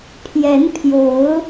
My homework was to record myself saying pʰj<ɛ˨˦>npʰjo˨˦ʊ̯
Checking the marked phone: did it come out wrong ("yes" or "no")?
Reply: no